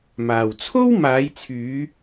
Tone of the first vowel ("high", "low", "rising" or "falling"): low